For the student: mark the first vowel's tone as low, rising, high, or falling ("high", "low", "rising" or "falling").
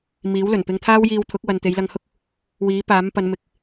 rising